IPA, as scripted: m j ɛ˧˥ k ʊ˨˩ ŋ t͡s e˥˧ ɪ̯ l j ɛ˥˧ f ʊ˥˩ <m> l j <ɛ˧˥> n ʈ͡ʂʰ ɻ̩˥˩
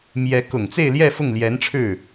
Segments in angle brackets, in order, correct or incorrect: incorrect: ŋ, correct

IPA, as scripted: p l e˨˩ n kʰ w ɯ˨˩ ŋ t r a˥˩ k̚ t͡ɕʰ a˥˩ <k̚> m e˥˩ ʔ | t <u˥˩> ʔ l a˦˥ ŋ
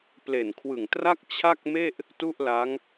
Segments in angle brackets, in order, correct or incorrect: correct, correct

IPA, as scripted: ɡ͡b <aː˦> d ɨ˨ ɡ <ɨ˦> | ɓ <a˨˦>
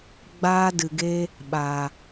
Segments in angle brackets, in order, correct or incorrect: correct, incorrect: e˦, incorrect: a˨

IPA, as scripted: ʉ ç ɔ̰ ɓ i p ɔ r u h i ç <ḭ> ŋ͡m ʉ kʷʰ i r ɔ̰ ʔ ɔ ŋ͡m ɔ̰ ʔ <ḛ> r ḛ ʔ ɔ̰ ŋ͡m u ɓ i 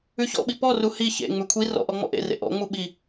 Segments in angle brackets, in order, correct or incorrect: incorrect: ḛ, correct

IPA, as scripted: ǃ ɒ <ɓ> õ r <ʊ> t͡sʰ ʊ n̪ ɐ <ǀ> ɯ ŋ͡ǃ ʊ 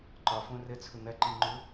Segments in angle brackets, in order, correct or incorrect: incorrect: f, incorrect: ə, incorrect: ǃ

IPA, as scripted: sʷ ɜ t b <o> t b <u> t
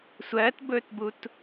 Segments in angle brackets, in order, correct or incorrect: incorrect: ɵ, correct

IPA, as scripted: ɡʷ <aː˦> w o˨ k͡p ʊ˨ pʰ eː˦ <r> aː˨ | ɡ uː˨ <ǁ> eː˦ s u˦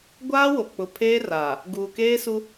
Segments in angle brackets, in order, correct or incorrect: correct, correct, incorrect: k

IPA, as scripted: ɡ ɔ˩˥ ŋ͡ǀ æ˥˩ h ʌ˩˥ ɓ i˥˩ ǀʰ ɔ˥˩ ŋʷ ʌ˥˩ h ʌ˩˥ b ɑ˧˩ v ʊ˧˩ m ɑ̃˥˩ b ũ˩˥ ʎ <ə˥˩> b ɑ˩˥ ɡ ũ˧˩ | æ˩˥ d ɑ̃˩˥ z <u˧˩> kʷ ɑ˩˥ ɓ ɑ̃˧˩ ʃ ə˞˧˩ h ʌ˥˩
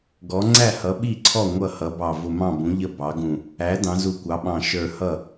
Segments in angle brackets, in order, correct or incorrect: correct, correct

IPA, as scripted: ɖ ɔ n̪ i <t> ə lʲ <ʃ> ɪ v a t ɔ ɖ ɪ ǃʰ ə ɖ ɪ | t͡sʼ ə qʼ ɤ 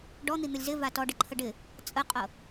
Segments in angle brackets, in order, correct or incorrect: incorrect: n̪, incorrect: z

